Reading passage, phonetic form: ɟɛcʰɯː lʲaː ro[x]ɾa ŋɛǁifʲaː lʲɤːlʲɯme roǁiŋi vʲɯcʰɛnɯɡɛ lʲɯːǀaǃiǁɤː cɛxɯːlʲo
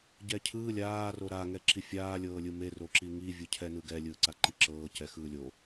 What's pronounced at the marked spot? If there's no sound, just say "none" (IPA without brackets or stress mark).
none